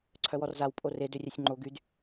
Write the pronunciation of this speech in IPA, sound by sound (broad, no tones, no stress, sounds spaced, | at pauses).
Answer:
ǀʰ œ w ɔ r z a w pʼ o r e d ø rʲ œ sʲ ŋ͡ǃ o ɡ y d